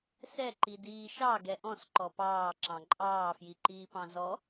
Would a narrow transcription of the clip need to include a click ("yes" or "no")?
yes